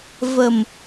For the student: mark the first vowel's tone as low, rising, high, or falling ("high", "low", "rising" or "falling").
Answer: low